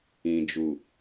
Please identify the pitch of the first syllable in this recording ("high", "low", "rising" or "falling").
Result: low